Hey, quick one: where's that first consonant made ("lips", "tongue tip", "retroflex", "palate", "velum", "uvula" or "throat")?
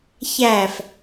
palate